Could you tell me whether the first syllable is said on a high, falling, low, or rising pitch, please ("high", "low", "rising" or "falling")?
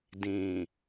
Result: low